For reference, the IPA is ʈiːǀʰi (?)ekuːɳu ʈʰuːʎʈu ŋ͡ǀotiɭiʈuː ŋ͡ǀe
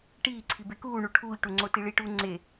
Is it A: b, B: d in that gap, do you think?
A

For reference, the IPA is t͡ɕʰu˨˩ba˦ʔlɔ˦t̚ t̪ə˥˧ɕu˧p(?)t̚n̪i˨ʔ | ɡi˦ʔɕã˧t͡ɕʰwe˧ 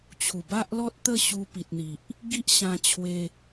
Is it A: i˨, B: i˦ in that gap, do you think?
A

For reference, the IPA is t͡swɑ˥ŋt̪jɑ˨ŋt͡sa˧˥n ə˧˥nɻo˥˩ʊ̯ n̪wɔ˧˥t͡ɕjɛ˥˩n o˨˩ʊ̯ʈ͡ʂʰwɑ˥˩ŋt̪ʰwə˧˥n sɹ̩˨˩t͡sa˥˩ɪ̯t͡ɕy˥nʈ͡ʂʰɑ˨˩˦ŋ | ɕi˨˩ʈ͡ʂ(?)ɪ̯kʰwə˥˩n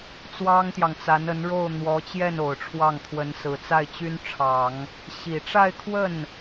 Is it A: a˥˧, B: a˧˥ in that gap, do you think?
A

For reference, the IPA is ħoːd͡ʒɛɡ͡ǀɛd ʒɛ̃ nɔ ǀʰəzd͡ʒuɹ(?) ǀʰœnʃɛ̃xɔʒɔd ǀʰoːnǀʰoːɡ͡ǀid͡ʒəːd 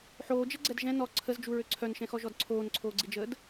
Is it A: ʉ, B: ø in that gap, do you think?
B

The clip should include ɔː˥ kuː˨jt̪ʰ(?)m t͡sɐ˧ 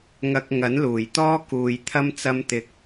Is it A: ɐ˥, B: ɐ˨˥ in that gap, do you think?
A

